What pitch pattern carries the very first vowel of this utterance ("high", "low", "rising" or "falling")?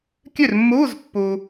falling